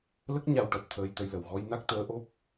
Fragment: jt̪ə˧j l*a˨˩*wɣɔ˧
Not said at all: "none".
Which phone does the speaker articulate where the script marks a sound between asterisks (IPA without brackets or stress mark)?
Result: ə˨˩